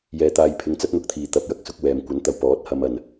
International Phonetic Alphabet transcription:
jɛː˧t̪aː˧jpʰɪ˧ŋ t͡sɐ˥t̚n̪ʊ˨˥k̚t̪ʰiː˨ t̪ɐ˨˥p̚jɐ˨˥k̚sʊ˧k̚ wɛː˨mkʷɐ˨˥nt̪ɐ˨˧w pɔː˨˥t̚hɐ˧mɐ˨n

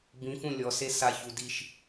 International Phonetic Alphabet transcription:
bĩ fũlʲɔse saçu diʃ

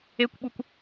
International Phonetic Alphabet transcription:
ekʷɓukʷ

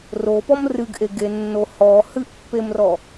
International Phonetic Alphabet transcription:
ropɔm rɨɡʔeɡenːo hɔ hɨʔpːemrɔ

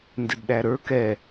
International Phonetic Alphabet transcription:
ndɪdɗæɾə˞ kɛ

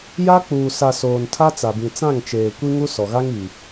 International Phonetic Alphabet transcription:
ja˦ k͡puː˨sa˨ soː˨ntʰa˦t͡sa˨ bĩ˨t͡sã˦˨ŋt͡ʃeː˨kʷi˦ ŋu˦sɔ˨ɣa˦ŋi˨

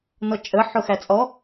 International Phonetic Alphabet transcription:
nɔt͡ʃʼə ħʊxæt͡sʼɔ

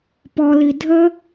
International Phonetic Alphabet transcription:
pɔli dʱə

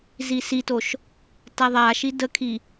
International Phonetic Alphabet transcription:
zisitoʃ | taðˤaʃi dəkʰi

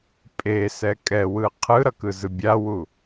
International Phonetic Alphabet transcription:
pʼesɛ kʼɛwɯ qʰɯɾʌkɯzɯ bʲawu

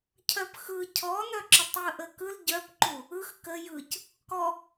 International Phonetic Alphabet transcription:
cʰœpxɯ cʰɔnœǁətˤjɯ ʔəkɯl ɟœpǃu | ɯx kə jɯc | kɔ

